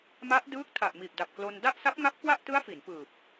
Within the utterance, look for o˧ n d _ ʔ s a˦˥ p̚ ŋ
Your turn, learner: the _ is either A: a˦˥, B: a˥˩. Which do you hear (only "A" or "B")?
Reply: B